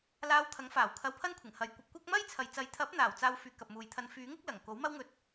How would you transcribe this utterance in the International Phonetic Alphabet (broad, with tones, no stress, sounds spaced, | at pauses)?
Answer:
l aː˧ w t̪ʰ ɐ˨˥ ŋ f aː˨˩ w kʰ ɐ˧ w pʰ ɐ˥ n kʷʰ ɪ˨˩ ŋ h ɐ˨ j kʷ ɐ˧ p̚ kʷ ɐ˥ k̚ m ɐ˥ j t͡sʰ ɐ˨ j t͡s ɐ˨˥ j t̪ʰ ɐ˨˥ p̚ n̪ aː˨˩ w t͡s aː˧ w f yː˨ k ɐ˨ p̚ m uː˨ j t̪ʰ ɐ˧ n f yː˨˥ ŋ ɪ˨˥ k̚ l ɐ˨˩ ŋ k o˨˥ w m ɐ˥ w ŋ ɵ˧ t̚